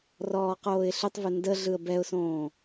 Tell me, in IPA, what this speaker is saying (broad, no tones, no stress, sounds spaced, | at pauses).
r ɔː q oː ɪ̯ ɬ ʏ tˤ v ʏ n d ə ɮ ɯ ə̯ b ɛ ʊ̯ s õː